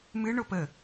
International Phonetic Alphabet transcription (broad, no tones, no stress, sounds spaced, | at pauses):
m ɨ ɳ o p ə